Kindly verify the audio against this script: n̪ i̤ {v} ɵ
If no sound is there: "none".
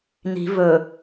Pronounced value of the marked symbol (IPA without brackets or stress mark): v